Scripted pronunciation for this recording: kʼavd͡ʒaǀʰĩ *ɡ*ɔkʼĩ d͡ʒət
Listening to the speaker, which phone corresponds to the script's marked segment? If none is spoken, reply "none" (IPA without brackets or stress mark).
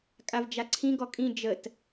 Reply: ɡ